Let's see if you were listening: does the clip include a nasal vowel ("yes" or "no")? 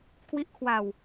no